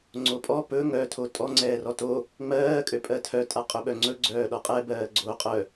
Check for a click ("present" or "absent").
present